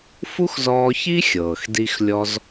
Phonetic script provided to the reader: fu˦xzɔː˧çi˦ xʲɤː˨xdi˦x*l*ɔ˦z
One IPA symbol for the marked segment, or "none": lʲ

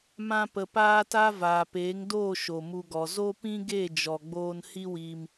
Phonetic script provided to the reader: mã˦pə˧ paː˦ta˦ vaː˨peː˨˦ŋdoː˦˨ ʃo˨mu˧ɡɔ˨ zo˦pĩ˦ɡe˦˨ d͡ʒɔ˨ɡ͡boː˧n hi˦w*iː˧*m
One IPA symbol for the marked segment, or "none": iː˧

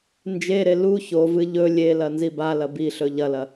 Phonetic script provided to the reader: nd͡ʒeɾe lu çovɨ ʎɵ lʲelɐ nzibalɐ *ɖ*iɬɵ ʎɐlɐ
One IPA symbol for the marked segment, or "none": b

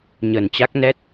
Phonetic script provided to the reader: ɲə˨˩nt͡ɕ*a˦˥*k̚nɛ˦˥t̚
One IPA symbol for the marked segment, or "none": a˦˥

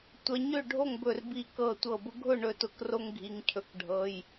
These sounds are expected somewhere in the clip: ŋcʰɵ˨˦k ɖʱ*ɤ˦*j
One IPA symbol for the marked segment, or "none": ɤ˩˧˩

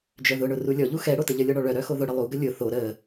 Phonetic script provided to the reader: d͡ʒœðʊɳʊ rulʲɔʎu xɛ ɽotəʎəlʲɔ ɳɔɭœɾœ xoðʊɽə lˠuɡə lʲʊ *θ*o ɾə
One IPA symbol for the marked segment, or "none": θ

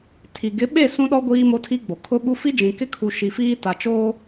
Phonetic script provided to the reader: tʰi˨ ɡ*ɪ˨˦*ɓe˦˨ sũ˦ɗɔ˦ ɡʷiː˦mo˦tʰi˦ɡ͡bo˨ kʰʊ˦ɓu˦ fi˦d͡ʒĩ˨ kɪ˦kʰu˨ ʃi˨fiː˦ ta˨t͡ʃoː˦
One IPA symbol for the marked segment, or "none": ɪ˨˦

